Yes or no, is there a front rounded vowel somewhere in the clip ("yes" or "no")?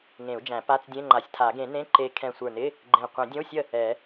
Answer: no